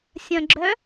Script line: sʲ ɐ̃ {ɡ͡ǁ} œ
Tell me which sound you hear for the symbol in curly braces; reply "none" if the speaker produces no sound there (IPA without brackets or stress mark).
ɡ͡ǁ